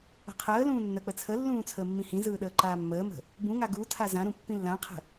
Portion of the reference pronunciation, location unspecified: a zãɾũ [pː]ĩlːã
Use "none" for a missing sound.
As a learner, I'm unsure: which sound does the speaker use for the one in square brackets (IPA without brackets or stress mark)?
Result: pː